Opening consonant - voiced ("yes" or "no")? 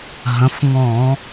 yes